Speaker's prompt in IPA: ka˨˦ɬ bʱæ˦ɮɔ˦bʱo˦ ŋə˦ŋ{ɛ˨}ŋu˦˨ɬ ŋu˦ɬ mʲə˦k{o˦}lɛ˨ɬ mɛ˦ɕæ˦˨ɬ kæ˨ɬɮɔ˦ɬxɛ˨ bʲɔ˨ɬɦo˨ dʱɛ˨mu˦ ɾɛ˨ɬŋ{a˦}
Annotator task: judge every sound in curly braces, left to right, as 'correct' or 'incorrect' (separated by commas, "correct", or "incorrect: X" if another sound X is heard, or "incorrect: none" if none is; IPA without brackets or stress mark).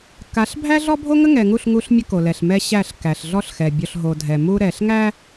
correct, incorrect: o˨, incorrect: æ˦